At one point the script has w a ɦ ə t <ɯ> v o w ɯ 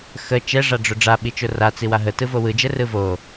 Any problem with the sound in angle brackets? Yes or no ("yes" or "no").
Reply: no